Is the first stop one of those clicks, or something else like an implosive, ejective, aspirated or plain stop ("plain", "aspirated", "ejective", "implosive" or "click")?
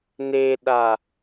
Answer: implosive